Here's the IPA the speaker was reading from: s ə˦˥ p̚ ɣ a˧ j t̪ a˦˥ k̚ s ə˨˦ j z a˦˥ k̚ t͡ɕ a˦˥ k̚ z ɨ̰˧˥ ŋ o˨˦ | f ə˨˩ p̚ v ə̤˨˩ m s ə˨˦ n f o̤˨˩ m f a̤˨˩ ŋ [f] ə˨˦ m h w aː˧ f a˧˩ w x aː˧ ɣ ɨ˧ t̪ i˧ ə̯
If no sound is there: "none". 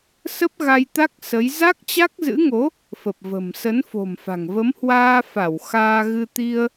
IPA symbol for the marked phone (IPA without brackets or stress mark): v